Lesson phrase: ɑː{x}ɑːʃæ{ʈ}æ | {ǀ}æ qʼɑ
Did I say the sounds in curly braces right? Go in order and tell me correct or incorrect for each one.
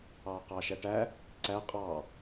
incorrect: q, correct, correct

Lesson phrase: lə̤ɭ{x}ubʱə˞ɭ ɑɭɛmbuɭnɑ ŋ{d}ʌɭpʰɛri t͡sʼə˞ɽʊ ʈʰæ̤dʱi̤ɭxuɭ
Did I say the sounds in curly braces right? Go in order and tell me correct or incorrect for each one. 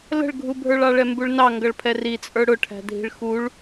incorrect: ɡʱ, incorrect: ɡ

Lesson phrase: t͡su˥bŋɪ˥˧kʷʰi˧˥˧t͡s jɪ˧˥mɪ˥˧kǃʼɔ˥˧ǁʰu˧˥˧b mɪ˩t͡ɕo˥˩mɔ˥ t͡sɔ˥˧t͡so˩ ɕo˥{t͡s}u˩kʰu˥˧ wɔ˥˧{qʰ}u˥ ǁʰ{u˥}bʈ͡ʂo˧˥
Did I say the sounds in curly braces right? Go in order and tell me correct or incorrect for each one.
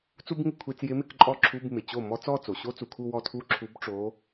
correct, incorrect: tʰ, incorrect: u˧˥

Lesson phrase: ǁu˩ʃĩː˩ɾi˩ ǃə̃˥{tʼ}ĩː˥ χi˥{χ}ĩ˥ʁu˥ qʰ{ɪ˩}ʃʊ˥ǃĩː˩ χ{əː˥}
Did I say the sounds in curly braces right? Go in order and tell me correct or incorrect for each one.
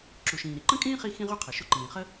incorrect: kʼ, incorrect: x, correct, incorrect: ə˥

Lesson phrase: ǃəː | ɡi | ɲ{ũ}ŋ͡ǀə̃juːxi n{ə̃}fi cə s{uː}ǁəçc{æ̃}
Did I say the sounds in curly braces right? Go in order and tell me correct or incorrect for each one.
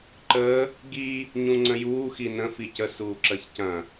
correct, correct, correct, incorrect: ɐ̃

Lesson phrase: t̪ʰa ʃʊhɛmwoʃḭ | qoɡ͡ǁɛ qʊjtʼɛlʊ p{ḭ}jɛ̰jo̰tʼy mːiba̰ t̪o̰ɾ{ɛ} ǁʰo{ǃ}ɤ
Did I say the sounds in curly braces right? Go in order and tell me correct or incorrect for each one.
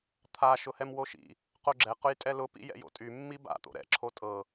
correct, incorrect: ɛ̰, incorrect: tʼ

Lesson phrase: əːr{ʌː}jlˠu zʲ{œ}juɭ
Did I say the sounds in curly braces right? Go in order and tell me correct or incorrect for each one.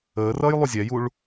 correct, incorrect: ɛ

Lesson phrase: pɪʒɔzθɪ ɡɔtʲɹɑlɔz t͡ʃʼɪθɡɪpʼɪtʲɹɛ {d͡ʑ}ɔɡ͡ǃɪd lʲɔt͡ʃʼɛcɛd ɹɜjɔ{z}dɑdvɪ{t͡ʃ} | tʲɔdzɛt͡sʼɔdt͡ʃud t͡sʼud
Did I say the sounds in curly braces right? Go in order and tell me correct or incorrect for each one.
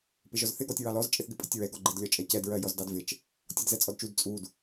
incorrect: ɡ, correct, correct

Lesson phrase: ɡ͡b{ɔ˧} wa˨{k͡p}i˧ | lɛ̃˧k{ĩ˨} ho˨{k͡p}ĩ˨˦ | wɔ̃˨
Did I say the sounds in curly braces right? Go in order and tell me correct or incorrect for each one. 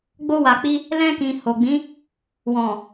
incorrect: o˧, correct, correct, incorrect: ɡ͡b

